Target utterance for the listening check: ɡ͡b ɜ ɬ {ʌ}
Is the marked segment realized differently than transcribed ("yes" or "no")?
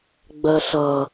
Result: no